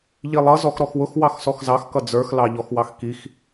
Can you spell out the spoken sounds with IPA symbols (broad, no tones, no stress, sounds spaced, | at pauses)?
ʎ i lˠ ʌ z ɔ x ɾ ɔ x w ʊ x w ɑ x s ɔ x z ɑ x k ʌ d͡z ə˞ x l ɑ ʎ ɔ x w ɑ x k i x